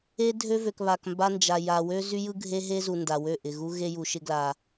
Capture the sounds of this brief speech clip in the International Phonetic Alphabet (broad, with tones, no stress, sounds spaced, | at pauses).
e˦ dʱ ø˦ v ø˨ k β a˨ k m b a˦ n d͡ʒ a˨ j a˨ w ø˦ z y˦ j ɯ˦ ɡʱ e˦ ɦ e˦ z u˨ n d a˨ w ø˦˨ ʔ ɪ˨ ɣ u˦ ɣ e˦ j u˨ ʃ ɪ˦ ɡ l a˨